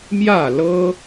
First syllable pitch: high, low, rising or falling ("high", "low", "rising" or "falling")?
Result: falling